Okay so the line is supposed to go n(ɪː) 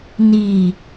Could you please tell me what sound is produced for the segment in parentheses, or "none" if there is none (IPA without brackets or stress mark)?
iː